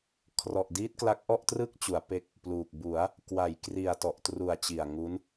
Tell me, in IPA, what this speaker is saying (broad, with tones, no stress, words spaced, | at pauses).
kʰrɔ˨˩ʔdiː˦˥t̚kla˦˥k̚ ʔɔ˥˩ʔtrɯ˥˩k̚t͡ɕu˩˦a̯ pe˦˥k̚ | pluː˨˩k̚ bu˩˦a̯ | kwa˩˦jkri˨˩a̯ tɔ˨˩ʔtru˨˩a̯ t͡ɕi˨˩a̯ŋu˦˥n